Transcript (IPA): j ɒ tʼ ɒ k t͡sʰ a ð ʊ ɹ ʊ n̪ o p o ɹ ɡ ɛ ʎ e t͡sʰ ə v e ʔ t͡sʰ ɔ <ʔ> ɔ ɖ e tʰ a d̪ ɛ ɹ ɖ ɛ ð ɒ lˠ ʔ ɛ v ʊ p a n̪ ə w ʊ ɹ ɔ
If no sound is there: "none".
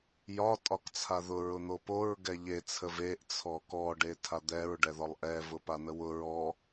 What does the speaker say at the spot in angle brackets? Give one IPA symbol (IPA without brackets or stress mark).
k